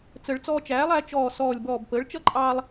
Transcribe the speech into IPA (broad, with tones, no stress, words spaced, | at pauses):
t͡sə˨˩˦ɭ t͡sɔː˧t͡ʃæː˩˥lˠ æ˩˥t͡ʃɔː˧˩ sɔː˧˩lʲbɔː˧˩bpəː˩˥ɭ t͡ʃʌ˥˧ǃʼɑː˧lˠ